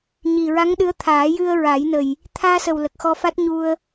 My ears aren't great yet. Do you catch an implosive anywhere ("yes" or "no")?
yes